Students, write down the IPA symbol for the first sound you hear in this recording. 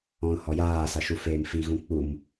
ɔ̃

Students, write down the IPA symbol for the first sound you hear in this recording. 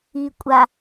iː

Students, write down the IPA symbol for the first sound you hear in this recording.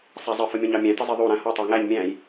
sˤ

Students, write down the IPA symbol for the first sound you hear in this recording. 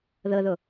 ð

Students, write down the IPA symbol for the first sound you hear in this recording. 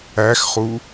æ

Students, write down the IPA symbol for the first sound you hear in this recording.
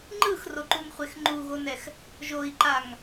ŋ͡ǃ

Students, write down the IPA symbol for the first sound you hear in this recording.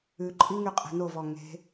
ʉ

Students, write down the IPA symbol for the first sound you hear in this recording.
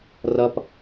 r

